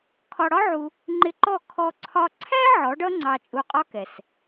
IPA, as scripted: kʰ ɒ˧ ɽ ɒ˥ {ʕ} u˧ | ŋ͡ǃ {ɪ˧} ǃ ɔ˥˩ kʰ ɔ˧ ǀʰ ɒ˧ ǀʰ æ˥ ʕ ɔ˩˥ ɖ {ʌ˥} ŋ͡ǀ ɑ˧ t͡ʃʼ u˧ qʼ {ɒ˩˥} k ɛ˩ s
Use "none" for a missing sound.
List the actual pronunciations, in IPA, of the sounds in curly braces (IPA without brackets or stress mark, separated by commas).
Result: ʕ, ɪ˧, ʌ˥, ɒ˥